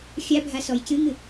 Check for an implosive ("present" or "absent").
absent